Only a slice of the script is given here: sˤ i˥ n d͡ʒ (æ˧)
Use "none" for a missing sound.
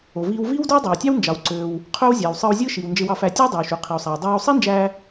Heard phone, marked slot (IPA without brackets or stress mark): æː˧